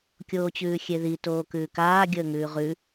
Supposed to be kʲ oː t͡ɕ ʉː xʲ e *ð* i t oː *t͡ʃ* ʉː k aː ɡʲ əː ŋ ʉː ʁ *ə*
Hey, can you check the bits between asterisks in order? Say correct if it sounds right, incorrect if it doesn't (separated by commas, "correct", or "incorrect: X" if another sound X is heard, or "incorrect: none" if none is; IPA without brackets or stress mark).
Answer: correct, incorrect: k, incorrect: ʉ